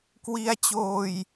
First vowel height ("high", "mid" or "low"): high